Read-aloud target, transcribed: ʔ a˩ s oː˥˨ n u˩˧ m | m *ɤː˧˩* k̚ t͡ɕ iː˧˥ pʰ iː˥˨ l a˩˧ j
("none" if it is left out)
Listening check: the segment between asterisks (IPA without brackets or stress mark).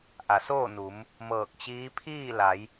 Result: ɤː˧˩